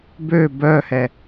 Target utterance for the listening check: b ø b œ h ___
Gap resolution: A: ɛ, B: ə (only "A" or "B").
A